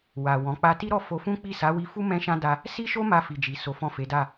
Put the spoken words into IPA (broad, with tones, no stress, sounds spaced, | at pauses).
w a˨ w ɔ̃˨˦ k͡p a˦ t i˦ ɾ ɔ˦˨ f o˧ f ũ˦ k͡p i˦˨ s a˨˦ w i˧ f u˦ m ɛ̃˦ ʃ ã˦ d a˧ | s i˦ ʃ o˦ m a˧ f i˨ d͡ʒ i˨ s o˨˦ f ɔ̃˦˨ f e˨˦ d a˦˨